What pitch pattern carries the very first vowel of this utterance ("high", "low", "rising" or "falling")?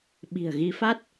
low